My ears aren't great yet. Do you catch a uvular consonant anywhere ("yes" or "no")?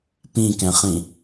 yes